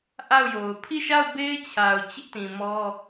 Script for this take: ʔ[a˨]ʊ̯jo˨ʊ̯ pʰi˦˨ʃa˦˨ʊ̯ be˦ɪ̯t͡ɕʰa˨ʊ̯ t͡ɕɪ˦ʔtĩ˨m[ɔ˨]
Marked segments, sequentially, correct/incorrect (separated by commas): incorrect, incorrect